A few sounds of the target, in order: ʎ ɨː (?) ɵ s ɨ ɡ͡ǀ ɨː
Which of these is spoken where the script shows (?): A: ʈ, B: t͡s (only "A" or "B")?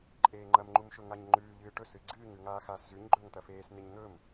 A